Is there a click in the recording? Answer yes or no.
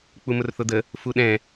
no